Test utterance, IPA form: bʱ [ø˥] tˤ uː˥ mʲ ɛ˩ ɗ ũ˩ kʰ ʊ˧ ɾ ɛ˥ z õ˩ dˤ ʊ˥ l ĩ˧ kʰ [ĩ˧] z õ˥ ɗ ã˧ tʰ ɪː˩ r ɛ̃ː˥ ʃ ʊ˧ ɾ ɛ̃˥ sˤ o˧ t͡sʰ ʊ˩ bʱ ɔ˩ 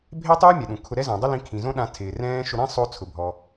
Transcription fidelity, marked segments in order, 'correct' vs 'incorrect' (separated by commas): incorrect, incorrect